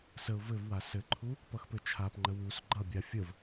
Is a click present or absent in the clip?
present